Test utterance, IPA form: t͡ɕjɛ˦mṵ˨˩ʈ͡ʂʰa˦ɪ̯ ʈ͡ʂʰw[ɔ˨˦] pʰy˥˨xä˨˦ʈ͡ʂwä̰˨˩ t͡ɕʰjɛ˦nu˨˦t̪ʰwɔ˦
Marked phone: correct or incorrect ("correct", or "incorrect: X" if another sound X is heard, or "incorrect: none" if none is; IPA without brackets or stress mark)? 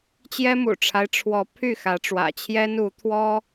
correct